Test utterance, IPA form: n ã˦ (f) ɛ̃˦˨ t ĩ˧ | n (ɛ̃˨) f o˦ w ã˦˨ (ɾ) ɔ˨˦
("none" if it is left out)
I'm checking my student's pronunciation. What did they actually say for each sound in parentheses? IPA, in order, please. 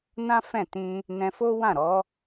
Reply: f, ɛ̃˧, ɾ

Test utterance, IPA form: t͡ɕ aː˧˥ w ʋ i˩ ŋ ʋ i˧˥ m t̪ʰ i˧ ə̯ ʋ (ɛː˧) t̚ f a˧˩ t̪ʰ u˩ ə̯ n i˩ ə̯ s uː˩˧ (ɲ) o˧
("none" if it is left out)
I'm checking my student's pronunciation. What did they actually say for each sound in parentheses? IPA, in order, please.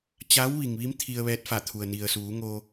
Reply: ɛː˧, ŋ

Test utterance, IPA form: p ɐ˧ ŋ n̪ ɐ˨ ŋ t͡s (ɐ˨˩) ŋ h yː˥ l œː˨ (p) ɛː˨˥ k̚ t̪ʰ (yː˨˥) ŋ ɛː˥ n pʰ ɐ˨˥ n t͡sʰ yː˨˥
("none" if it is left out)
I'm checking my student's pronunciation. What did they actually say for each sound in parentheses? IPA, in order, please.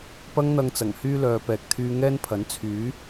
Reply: ɐ˨˩, p, yː˧

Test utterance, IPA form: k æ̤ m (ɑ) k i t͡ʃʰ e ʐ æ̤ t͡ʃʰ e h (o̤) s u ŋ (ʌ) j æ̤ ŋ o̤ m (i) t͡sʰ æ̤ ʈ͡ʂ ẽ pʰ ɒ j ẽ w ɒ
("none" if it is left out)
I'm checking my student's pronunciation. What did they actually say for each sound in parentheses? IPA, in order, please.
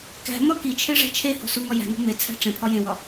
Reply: ɒ, o̤, ɒ, e

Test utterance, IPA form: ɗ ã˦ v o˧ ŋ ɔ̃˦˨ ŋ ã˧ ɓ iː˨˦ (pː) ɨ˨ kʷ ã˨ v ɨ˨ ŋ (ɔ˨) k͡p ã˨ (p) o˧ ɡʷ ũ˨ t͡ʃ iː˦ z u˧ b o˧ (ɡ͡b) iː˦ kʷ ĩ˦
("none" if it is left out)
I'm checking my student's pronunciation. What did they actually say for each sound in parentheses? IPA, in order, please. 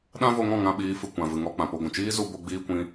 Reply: f, ɔ˧, p, ɡ͡b

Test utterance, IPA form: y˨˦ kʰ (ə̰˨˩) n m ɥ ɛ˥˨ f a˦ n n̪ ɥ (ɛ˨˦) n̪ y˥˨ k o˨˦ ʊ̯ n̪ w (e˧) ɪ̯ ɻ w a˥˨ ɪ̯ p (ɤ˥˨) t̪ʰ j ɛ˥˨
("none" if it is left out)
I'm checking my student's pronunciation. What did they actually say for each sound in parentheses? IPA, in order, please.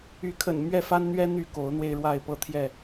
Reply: ə̰˨˩, ɛ˦, e˧, ɤ˥˨

